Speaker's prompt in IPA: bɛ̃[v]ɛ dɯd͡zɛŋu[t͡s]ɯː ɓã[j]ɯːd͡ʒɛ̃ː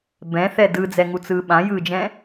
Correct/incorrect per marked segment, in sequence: incorrect: θ, correct, correct

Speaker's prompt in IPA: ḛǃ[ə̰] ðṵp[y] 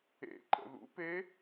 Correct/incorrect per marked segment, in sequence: correct, incorrect: e

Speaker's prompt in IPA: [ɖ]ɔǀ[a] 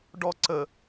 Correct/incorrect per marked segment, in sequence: correct, incorrect: ə

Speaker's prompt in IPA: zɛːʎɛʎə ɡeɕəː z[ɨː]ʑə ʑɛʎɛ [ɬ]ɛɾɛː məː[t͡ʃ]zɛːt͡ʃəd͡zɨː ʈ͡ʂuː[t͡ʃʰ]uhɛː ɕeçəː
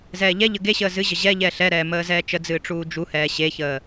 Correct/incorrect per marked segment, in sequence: incorrect: ɨ, correct, incorrect: none, incorrect: d͡ʒ

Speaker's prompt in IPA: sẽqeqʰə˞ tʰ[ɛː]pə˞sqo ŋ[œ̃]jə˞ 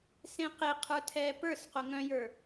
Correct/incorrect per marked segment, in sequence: correct, correct

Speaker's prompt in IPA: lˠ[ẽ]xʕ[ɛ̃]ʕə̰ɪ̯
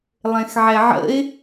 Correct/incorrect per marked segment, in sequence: correct, incorrect: ɛ

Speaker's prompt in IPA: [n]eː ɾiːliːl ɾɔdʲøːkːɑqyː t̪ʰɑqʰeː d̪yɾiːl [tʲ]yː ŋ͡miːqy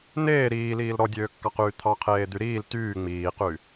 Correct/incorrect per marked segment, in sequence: correct, incorrect: t

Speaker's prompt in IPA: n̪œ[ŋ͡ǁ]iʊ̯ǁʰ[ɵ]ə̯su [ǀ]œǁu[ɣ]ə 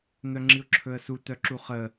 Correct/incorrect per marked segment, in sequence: correct, correct, incorrect: t, incorrect: χ

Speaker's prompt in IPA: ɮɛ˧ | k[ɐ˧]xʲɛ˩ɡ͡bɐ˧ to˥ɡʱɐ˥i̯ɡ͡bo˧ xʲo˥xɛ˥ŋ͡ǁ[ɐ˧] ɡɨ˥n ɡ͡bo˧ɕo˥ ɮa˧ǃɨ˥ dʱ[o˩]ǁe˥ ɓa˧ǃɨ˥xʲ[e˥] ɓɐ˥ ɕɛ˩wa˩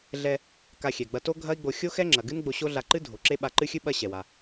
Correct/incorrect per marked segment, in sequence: incorrect: a˧, incorrect: ɐ˩, correct, incorrect: ɨ˥

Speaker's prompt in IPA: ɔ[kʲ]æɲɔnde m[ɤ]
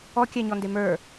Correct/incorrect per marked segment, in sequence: correct, incorrect: ə˞

